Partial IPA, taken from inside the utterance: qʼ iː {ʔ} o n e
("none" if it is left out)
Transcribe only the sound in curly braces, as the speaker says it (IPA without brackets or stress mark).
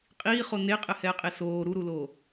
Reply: χ